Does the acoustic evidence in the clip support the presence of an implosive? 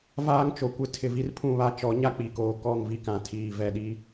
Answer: yes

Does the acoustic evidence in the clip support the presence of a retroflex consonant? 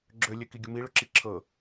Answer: yes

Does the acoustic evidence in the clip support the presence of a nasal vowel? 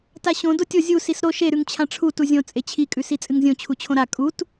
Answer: yes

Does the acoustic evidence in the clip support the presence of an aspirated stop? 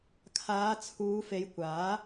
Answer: yes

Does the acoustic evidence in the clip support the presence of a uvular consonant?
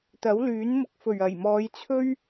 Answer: no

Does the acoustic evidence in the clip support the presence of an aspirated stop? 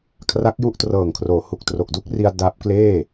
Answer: yes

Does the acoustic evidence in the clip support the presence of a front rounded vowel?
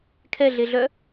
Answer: yes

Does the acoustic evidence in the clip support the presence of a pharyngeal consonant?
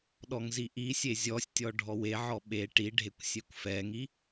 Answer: yes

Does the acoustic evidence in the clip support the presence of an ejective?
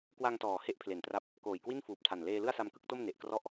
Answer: no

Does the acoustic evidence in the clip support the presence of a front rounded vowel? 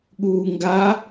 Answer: no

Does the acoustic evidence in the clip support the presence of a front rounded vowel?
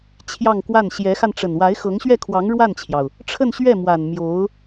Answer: no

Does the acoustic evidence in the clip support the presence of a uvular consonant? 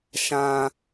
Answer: no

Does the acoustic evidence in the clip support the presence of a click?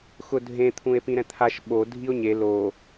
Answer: no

